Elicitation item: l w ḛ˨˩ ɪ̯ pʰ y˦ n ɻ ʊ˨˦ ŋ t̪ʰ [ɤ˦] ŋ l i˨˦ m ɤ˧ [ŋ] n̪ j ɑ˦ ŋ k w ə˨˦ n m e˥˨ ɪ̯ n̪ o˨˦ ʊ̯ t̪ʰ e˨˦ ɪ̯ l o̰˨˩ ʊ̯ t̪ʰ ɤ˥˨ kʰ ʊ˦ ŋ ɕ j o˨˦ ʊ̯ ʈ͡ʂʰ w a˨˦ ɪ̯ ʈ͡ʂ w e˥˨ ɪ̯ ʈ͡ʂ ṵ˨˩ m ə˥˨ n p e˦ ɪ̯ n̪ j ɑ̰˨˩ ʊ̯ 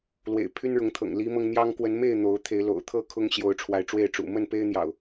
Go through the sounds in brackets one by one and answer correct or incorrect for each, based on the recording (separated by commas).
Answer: incorrect, correct